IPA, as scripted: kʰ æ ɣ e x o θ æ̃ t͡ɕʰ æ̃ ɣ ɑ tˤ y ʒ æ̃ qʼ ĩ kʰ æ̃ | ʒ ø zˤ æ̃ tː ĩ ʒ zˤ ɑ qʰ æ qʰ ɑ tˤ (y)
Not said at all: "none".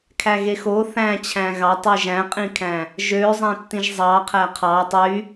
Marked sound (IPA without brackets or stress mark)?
y